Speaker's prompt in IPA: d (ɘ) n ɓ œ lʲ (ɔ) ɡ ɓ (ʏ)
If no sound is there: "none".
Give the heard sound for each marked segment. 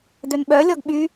ø, ɔ, y

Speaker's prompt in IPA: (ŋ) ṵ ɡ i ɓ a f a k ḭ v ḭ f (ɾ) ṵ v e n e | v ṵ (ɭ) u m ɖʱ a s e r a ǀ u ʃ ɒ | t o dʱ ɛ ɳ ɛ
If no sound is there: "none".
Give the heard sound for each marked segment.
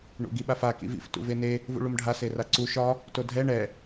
ɳ, t, ɭ

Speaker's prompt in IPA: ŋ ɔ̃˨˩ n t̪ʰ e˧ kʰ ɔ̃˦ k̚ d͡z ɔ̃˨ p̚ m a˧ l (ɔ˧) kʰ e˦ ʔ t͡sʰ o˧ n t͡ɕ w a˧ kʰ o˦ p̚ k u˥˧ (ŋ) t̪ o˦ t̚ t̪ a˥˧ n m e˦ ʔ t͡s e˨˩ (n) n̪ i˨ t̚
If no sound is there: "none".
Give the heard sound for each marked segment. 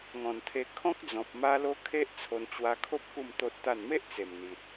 o˧, m, m

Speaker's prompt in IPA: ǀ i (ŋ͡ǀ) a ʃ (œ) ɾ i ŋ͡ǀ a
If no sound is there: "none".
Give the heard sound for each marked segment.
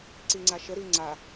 ŋ͡ǀ, ə

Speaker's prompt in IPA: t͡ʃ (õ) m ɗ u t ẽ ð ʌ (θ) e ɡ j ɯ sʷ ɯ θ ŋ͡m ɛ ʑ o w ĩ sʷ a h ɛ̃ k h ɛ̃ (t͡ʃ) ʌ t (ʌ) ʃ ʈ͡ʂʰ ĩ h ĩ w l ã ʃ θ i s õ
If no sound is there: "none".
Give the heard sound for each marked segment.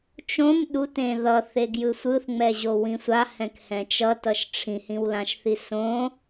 õ, θ, t͡ʃ, ʌ

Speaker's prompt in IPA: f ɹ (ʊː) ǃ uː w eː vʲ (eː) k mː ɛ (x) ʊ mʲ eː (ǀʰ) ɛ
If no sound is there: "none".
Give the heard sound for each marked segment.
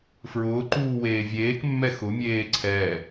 ʊː, eː, x, ǀʰ

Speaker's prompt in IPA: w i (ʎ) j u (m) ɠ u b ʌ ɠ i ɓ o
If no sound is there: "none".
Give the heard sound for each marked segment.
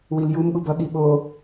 l, m

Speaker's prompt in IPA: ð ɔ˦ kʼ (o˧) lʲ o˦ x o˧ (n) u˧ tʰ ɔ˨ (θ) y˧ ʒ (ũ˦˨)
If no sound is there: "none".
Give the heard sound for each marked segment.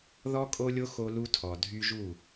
o˦, l, dʱ, u˦˨

